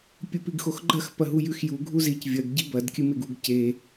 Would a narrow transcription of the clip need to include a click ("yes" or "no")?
yes